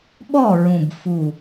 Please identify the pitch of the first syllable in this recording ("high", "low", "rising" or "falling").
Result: falling